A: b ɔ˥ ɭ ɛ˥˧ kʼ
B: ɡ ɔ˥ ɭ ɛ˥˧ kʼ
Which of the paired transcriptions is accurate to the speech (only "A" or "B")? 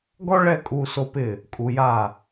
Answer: B